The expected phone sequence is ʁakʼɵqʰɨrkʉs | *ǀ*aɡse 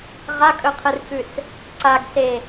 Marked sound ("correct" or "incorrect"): correct